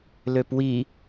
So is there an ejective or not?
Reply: no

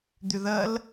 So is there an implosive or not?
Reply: no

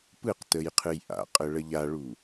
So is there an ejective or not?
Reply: yes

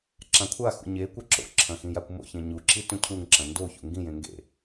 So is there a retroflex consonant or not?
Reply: no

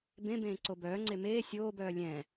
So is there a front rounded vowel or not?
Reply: yes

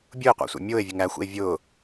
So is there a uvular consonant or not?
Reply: yes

